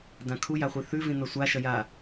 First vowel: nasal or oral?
nasal